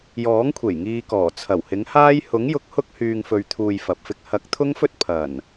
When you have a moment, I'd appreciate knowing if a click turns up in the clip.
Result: no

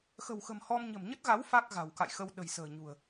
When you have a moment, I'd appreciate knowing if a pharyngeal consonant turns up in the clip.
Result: no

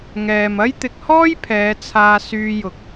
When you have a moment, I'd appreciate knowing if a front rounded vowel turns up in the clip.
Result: yes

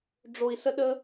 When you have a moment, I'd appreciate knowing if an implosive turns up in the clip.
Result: yes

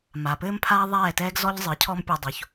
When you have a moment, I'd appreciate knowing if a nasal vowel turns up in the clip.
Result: no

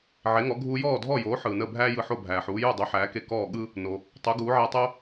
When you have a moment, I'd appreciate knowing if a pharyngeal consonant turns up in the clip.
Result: yes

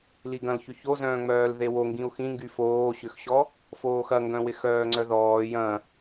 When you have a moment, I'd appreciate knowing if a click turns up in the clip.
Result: yes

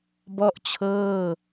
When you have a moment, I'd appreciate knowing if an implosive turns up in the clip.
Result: no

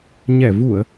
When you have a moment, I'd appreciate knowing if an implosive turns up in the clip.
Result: no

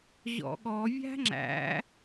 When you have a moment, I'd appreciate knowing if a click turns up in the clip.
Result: yes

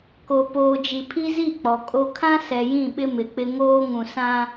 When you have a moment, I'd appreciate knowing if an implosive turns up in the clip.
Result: yes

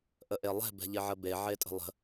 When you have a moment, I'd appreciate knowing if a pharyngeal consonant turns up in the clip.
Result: yes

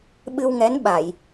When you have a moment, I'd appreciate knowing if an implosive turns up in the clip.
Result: yes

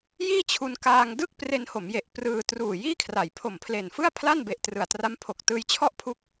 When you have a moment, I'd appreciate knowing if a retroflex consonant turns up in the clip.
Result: no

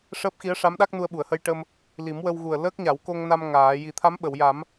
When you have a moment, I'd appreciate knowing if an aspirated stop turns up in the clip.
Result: yes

